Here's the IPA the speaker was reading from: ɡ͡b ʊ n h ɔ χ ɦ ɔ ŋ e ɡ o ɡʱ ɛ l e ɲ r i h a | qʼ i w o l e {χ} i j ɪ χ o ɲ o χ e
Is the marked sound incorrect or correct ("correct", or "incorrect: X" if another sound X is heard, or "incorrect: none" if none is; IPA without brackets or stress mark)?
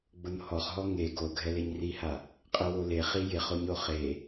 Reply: correct